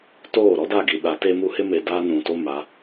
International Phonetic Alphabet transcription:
t oː˦˨ ɾ ɔ˦ d a˦˨ ɡ i˨ ɗ a˨˦ t e˦ m u˦ h ɪ˦ m e˨ d aː˦ n ũ˨ t o˦ m a˨˦

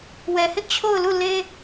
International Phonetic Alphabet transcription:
w ɛ˨ h ɪ˦ ʔ t͡ɕʰ o˦˨ ʊ̯ l u˦˨ l e˦

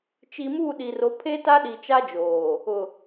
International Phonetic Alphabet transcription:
t͡ʃ i˨ m uː˦˨ ɗ i˨ r o˨˦ pʰ e˦ t a˦ ɗ i˨ t͡ʃ a˦ d͡ʒ oː˨ | ʊ˨

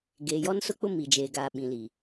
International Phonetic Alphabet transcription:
ɡ eː˨ j ɔ˦ n s ʊ˦ k͡p ʊ˦ m i˨ d͡ʒ eː˨ ɡ aː˨ ɓ ĩ˨ l i˨

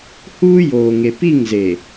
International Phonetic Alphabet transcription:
h uː˦ j oː˨ ŋ e˨ p i˦˨ ŋ z e˨

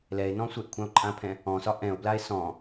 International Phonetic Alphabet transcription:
l ɛ e̯ n ɔ̃ sʷ ɛ ʔ kʷʰ ã o̯ ǃʼ ã pʰ ɛ̃ | ɔ̃ s ɒ ʔ ɛ̃ o̯ b l a e̯ s ɔ̃

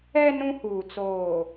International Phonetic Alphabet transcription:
ɛ˦ n ũ˦ h uː˨ t͡s oː˨

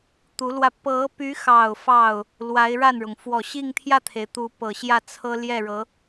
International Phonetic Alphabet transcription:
t̪ u˧˥ l w ä˧ p ɤ˧˥ p y˧˥ x ɑ˨˩ ʊ̯ f ɑ˥˩ ʊ̯ | l w a˧˥ ɪ̯ ɻ a˥˩ n ɻ ʊ˩ ŋ f w ɔ˨˩ ɕ i˥˧ ŋ t̪ʰ j ä˥˩ t̪ʰ e˩ ɪ̯ t̪ u˧˥ p ɤ˨˩ ɕ j ä˥˩ t͡sʰ ɤ˥ l j ɛ˥˩ ɻ ɤ˧˥

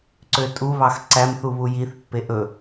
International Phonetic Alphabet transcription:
ǀ ø tʼ u β ɑ x ǀ æ m θ u β u j i θ pː e ʔ ɵ

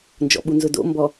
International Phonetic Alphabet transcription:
n d͡ʒ ɔ̰ ɓ u n z ʊ d o̰ m b ɔ

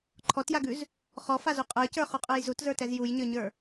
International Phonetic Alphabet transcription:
ǃʰ ɔ t j a ɡ ʉ z | χ ɔ f a z u qʼ ə˞ c ə˞ χ u qʼ ə˞ j z u t z ə˞ t ɛ z j u j ɲ ə˞ ɲ ə˞

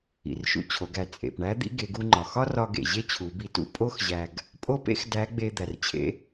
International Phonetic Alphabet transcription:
ḭ˩ r ʃ ṵ˧ t͡ɕʰ o˩˧ ɡ æ˩ t͡sʼ ḛ˩ p ɳ æ˧˥ d̪ ḭ˧˥ ɡ e˩˧ ɡ u˧ ŋ͡ǃ ɒ˩ x ɒ˥ r ɒ˧ ɡ ḛ˩ ʑ e˥ t͡ɕʰ u˩˧ b i˧ t ṵ˧˥ pʼ o˥ x ʑ æ˧ ɡ | pʼ o˥ p ḛ˥ x d æ˧˥ ɡ͡b e˧ d̪ æ˩ r t͡ɕʰ ḛ˧˥

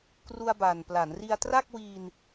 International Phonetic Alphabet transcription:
k r u˧ a̯ b a˨˩ n p l a˩˦ n r i˧ a̯ t r a˥˩ k̚ w iː˧ n

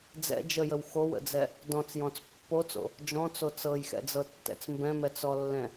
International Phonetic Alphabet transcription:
d͡z ɛ̰ d͡ʒ ə j ə w x o w ə̰ d͡z ɛ | d ɔ̃ t͡s j ɔ̃ t͡s pː o t͡s o̰ | d͡ʒ ɔ̃ t͡s o t͡s ɤ j x ɛ̰ d͡z ɤ tː ɛ̰ t͡s m b ɛ̃ m ɛ t͡s ɔ lː ɛ̃

